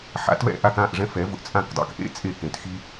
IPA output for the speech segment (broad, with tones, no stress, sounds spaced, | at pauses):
ħ a̰˩˥ t v ɛ̰˧ ʔ a˥˩ k ã˥˩ ʔ ʐ ɛ̃˥ f ɛ˩˥ v ʊ˧ ʔ t͡sʼ ã˥˩ k dˤ a̰˩˥ k ʔ ḛ˥ t͡sʼ e˥˩ k ẽ˩ t x i˥